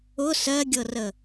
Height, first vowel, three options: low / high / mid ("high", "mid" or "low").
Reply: high